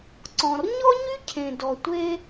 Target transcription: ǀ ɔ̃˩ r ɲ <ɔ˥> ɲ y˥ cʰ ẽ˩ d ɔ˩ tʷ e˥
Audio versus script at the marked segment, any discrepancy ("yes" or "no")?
no